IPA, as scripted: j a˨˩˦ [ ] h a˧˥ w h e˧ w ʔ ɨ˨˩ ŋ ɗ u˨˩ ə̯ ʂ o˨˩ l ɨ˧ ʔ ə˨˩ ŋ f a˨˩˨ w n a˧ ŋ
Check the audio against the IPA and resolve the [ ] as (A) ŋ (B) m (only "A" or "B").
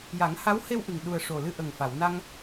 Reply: A